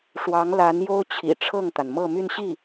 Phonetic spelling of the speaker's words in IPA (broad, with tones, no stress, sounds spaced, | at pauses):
ʂ w ɑ˧˥ ŋ l a˧˥ n j o˥ ʊ̯ t͡ɕʰ ḭ˨˩ ʈ͡ʂʰ ɤ˥˩ ŋ t̪ a˩ n m ɤ˥˧ m y˥˧ n ɕ i˥˩